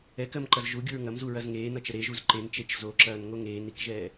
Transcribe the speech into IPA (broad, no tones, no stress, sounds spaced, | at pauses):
ɛ k ɜ m ǃ ɐ z ʒ u ɡʲ u ɹ ŋ ɐ m z u ɹ ɐ z ŋ eː n ʌ t͡ʃ ə ɾ e ʒ u z ǃ e n t͡ʃ e t͡ʃ z o ǁ ɐː n ŋ o ŋ eː n i k ʒ ɛː